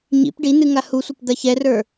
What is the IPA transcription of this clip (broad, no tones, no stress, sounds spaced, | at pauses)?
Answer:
ɲ ḭ p ɖ i n ɨ ŋ a h u sʷ ɐ p d̪ ɐ ç ɛ r ə˞